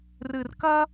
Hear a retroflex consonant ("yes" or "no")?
no